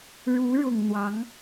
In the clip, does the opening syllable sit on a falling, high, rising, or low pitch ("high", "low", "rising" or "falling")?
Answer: rising